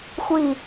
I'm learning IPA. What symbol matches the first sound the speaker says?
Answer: xʷ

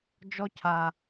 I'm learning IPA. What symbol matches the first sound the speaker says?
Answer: d͡ʒ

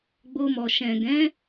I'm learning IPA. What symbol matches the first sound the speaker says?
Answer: ɡ͡b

